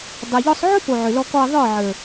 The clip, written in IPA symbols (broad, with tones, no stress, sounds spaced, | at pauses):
dˤ ə˞˨ ʎ ɔ˧ sˤ ʕ ɵ˦ p o˨ ʕ ʏ˨ l ɔ˧ k ɔ˧ ə̯ ðˤ ə˞˦˨ ʕ ə˞˨